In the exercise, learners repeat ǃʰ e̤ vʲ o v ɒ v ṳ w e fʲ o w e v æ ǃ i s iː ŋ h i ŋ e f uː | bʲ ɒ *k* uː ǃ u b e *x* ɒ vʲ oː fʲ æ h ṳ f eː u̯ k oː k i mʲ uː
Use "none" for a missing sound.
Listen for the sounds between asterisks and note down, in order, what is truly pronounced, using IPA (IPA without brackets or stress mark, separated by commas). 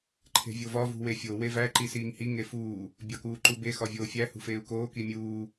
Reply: k, x